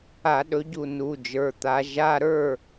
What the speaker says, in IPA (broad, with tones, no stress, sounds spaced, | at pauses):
a˧˩˧ ɗ ɵ˨˦ ɟ u˧˩ n u˩˧˩ d͡ʒ ə˞˩˧˩ t̪ a˨˦ ʒ a˧˥˧ ɾ ə˞˥˨